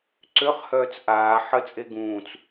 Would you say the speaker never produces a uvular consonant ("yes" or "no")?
no